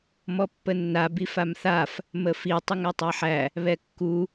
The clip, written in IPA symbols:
mɔpːənːa bifamθaf | məfi tˤəŋætˤæħæ | βɛkːu

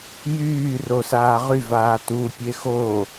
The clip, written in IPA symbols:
jyːro saːʁyvaː tu pʲexo

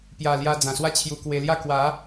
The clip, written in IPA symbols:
pja˨˩ lja˧d͡zã˨˩swa˦t͡ɕʰju˧ kwe˧lja˥˧ kwa˨˦

